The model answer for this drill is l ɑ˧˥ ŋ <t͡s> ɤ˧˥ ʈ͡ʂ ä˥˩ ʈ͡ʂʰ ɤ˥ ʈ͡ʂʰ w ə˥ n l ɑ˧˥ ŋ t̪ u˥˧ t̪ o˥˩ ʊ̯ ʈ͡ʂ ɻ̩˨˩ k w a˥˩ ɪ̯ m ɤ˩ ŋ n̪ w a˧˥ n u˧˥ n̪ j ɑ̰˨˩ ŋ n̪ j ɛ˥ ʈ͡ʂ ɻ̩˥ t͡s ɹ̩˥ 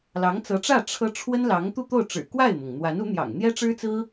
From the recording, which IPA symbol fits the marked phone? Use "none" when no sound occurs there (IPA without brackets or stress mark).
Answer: t͡s